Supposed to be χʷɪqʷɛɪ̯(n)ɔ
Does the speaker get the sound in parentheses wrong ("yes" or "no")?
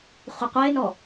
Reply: no